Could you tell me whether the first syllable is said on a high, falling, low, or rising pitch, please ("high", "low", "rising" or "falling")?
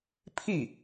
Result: falling